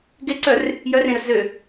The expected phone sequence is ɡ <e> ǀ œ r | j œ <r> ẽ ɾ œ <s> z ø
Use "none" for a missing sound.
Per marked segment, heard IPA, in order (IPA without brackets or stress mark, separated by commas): e, r, s